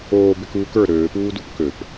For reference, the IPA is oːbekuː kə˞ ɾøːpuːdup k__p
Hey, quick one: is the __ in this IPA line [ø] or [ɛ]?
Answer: ø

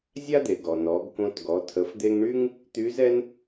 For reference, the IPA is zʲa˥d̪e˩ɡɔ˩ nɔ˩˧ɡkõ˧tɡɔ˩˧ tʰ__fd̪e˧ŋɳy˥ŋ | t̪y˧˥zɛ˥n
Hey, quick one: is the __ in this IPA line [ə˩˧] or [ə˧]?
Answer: ə˩˧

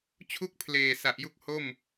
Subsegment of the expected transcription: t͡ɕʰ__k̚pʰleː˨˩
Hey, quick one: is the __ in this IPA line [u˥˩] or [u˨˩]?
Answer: u˥˩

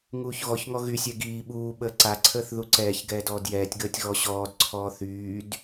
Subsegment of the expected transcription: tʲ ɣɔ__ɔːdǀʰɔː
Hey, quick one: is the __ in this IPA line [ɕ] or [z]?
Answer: ɕ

